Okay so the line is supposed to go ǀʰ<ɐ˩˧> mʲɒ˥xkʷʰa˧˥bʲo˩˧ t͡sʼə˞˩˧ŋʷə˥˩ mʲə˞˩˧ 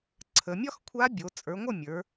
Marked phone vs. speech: incorrect: ə˩˧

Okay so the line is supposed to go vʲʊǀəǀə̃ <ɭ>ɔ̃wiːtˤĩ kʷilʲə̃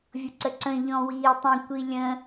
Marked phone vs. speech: incorrect: ʎ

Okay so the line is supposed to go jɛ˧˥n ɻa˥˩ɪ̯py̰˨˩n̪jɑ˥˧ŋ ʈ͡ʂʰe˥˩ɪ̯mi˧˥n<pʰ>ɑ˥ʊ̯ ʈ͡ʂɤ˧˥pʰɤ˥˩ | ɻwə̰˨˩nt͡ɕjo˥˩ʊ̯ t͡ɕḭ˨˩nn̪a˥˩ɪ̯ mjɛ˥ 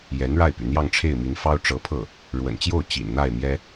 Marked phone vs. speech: incorrect: f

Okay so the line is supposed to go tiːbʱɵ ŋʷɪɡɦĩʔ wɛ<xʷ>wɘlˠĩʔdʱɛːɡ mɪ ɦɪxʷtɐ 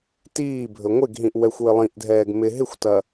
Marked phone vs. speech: correct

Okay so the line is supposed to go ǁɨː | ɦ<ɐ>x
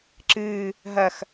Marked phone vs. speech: correct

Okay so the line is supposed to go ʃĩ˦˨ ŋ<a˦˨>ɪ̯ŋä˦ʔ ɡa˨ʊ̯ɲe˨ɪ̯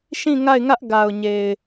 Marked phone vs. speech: correct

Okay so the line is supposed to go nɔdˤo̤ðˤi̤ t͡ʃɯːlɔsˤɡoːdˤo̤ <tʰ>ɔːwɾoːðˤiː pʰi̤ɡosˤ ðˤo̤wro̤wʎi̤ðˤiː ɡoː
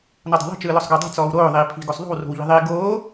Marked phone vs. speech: incorrect: t͡s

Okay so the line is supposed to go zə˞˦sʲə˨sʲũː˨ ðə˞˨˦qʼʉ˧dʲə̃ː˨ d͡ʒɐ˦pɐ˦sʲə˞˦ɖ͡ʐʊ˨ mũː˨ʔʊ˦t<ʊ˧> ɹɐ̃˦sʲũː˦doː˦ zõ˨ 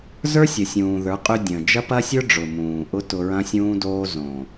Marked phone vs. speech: correct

